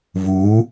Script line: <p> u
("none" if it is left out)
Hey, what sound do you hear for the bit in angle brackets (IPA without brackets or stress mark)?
β